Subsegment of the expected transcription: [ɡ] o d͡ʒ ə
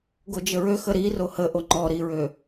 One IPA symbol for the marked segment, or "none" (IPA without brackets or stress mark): ɡ